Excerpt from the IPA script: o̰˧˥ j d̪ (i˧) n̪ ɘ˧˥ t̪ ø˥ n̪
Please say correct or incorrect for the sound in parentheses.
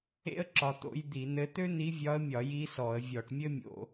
incorrect: i˧˩˧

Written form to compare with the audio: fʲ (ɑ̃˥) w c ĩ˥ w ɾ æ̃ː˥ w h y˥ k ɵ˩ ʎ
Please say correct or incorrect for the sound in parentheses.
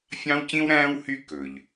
correct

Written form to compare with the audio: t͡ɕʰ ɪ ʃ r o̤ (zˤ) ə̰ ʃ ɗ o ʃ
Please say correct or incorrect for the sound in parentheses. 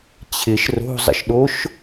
correct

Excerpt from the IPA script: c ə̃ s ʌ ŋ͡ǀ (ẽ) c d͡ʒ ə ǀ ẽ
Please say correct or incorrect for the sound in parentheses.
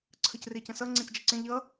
correct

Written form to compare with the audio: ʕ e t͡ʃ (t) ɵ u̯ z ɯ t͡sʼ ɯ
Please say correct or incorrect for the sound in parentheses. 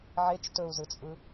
correct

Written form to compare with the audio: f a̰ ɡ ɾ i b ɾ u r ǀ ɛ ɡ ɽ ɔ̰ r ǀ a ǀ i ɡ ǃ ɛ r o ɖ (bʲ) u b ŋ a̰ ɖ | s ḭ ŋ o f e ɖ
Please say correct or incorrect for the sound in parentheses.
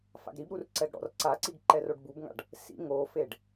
incorrect: b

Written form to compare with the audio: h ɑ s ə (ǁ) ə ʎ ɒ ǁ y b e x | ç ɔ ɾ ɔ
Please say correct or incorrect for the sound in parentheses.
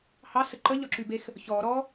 incorrect: ǃ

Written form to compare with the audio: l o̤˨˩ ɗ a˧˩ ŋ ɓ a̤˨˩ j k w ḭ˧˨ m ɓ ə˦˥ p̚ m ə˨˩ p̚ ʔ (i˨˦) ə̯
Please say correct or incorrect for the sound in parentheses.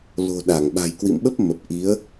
correct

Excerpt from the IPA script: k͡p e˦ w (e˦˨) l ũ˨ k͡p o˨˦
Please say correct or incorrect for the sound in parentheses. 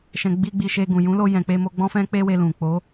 incorrect: e˧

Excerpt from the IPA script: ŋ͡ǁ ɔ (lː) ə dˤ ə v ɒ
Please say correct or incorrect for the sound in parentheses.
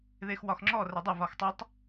incorrect: r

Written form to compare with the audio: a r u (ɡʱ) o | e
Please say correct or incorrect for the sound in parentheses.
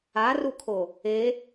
incorrect: kʰ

